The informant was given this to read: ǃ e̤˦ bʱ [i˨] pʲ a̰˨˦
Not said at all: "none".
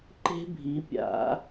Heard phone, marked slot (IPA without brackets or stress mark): i˨˦